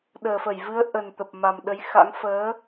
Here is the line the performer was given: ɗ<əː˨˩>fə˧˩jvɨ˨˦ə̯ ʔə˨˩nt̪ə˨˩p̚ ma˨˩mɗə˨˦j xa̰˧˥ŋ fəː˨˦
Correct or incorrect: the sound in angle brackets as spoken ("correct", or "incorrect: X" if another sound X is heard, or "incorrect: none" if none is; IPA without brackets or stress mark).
correct